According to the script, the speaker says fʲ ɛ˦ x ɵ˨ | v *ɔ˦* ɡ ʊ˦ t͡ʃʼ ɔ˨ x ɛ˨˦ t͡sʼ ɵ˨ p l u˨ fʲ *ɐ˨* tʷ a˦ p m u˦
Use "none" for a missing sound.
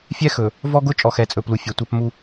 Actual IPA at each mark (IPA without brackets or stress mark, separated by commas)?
ɔ˦, ɐ˨